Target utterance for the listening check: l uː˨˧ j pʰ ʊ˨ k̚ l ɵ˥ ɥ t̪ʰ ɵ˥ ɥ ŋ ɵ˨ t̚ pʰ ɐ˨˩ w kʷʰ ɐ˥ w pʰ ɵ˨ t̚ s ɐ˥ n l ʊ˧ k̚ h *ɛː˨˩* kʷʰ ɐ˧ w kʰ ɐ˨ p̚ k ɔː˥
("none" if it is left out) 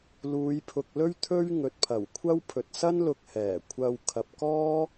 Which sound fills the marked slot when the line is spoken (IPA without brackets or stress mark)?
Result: ɛː˨˩